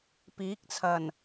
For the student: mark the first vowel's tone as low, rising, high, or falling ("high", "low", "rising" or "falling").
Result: rising